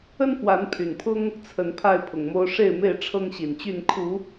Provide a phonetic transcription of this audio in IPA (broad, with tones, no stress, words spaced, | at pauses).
ə˦nfwa˨˦n pʰy˨˩npʰʊ˦ŋ | t͡sʰə˨˦n pʰa˥˨ɪ̯ pʰʊ˨˩ŋmo˦ʊ̯ ʂe˥˨ɪ̯me˥˨ɪ̯ ʈ͡ʂʰɤ˦ŋɕi˨˩nt͡ɕy˥˨n kʰu˨˦